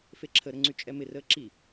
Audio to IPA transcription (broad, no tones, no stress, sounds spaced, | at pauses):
f e ǁʰ ə ɾ ə ŋ͡ǀ y t͡ʃʼ ɛ m ɪ r əː ǁ i